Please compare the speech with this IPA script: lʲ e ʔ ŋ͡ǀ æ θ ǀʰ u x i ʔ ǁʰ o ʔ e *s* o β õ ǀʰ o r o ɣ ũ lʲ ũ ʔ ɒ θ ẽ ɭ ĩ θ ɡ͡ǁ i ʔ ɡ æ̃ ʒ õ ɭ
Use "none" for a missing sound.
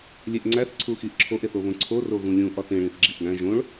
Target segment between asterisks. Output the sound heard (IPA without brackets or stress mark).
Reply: θ